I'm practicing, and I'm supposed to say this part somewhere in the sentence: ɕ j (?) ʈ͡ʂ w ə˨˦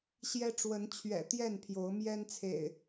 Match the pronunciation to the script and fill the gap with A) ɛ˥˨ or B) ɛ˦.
B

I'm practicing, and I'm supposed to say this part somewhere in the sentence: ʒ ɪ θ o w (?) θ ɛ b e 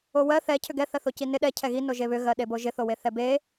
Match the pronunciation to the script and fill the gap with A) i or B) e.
B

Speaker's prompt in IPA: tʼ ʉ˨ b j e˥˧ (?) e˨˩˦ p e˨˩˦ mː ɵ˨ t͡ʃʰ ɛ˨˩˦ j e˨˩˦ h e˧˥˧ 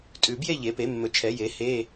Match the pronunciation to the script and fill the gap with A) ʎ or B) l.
A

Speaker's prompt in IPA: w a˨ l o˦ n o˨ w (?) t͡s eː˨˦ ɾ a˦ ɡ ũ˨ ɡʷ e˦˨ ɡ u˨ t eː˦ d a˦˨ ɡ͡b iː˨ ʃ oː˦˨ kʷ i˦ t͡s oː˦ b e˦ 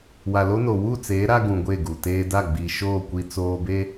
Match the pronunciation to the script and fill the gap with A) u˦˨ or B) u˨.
A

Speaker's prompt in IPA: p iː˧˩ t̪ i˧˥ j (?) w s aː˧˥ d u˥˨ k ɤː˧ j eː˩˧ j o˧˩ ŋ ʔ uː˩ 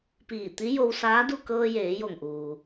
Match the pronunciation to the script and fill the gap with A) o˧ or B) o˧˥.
A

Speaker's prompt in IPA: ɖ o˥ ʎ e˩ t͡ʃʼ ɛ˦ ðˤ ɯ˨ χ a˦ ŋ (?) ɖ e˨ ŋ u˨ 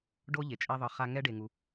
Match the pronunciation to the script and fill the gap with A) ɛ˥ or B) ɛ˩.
A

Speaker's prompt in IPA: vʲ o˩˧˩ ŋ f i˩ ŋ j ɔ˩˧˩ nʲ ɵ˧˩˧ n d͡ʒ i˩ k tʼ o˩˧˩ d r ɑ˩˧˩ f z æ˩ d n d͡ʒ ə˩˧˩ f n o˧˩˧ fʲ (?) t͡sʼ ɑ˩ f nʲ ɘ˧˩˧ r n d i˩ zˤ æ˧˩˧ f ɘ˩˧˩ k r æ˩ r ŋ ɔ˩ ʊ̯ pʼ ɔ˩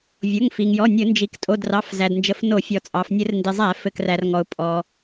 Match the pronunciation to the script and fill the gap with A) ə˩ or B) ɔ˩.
B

